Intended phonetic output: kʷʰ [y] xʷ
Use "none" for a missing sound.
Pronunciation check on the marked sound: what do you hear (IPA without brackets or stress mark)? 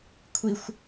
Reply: i